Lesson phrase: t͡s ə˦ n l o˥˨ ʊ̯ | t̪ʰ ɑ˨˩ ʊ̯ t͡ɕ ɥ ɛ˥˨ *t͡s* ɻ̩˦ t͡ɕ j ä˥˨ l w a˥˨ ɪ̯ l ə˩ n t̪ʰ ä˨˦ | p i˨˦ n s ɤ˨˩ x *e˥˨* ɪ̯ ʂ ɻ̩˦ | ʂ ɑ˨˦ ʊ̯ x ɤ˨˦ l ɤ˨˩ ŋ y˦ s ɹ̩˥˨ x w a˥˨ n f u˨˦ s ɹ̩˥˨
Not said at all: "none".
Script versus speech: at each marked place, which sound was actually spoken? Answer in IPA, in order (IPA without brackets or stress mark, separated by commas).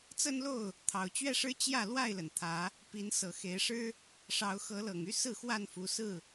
ʂ, e˨˦